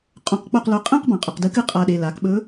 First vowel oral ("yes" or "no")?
no